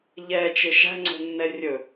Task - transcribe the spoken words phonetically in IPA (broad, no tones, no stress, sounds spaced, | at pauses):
ʎ ɛ t͡ʃ ɪ ʃ æ̤ ŋ͡ǀ o̤ nː ɛ rʲ ɵ